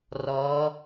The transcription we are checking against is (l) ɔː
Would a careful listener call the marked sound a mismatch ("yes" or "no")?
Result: yes